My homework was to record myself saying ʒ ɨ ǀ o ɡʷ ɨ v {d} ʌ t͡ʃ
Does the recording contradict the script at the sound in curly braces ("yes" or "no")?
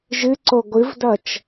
no